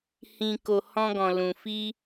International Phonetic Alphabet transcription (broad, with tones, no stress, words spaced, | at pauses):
hĩ˧ko˧ hɔ̃˦ɡɔ̃˧lũ˧fi˦